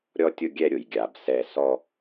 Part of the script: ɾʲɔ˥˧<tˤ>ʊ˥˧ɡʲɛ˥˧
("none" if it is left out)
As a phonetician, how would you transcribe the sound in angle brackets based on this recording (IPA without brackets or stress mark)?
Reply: tʲ